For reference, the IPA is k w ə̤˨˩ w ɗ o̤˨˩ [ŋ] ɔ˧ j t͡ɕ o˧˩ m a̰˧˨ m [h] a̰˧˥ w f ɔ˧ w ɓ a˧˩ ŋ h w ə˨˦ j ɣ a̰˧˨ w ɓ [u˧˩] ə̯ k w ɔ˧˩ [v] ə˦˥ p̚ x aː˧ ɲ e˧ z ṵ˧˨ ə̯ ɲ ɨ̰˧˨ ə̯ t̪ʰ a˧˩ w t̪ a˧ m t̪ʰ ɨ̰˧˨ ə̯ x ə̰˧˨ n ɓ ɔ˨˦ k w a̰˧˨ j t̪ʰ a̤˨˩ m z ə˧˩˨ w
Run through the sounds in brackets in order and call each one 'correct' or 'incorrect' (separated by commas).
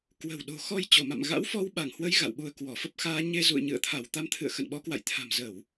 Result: incorrect, incorrect, incorrect, incorrect